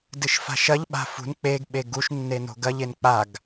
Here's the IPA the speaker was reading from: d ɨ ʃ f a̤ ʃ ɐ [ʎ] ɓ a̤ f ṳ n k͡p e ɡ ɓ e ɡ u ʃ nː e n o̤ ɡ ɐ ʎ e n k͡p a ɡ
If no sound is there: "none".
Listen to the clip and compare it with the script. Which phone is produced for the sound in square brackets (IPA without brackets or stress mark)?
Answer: ʎ